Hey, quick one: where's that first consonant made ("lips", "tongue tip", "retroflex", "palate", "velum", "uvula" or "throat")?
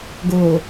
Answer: velum